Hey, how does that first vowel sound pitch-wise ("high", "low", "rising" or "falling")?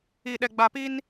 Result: low